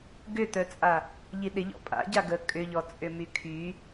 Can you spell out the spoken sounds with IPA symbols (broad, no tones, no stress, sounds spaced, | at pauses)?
ɡ ʏ t̪ œ t͡sʼ a | ʎ i ɗ ɪ ʎ ɔ̰ pʼ a̰ ɟ a ɡ ə kʼ ʏ ʎ ɔ t͡sʼ ʏ m y kʰ y